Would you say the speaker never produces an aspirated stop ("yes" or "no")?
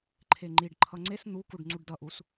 no